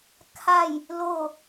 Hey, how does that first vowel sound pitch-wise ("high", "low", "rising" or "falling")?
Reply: falling